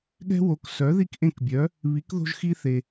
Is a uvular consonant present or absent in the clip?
absent